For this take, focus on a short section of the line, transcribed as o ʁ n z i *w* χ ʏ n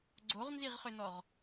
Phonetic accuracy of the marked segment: incorrect: ʁ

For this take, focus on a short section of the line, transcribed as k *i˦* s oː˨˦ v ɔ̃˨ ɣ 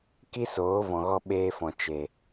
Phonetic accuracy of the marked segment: correct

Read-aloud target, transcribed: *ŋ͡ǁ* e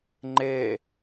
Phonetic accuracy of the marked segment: incorrect: ŋ͡ǃ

